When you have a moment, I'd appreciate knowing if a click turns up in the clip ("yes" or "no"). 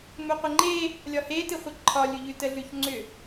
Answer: yes